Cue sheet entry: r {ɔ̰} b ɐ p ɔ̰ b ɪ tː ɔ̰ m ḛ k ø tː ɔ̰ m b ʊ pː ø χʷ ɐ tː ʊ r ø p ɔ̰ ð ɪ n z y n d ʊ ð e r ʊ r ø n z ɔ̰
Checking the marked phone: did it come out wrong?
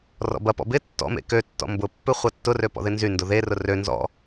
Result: no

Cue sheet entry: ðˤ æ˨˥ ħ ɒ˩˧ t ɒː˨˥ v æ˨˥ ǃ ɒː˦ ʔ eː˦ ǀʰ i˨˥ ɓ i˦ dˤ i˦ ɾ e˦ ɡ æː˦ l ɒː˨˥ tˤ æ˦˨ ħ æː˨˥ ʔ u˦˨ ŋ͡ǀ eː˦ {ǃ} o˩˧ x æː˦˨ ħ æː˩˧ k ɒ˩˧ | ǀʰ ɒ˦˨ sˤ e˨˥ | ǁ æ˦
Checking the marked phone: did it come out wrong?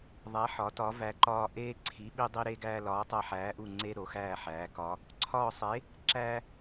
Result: yes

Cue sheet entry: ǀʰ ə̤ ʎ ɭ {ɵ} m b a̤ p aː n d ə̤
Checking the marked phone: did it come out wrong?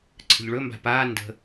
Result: no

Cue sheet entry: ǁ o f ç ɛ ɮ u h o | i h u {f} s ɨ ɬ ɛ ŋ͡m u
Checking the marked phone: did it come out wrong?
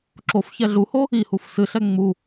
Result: no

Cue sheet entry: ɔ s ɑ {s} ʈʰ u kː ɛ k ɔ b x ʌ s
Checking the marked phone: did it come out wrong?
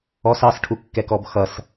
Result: no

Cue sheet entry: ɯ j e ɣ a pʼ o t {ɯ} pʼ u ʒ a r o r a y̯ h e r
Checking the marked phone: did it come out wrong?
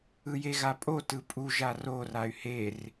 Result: no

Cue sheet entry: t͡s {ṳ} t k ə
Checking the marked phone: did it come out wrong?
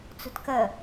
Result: no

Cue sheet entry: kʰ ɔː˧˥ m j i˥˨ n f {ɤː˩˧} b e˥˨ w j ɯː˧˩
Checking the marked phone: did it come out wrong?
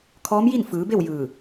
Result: yes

